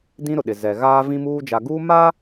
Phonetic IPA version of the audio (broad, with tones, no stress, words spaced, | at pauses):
dĩ˦ɾʊ˨ɗɪ˨ zɛ˨ɣaː˦vĩ˦muː˦ d͡ʒa˨ɡuː˦ma˦